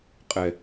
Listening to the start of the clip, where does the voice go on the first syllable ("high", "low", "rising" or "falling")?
low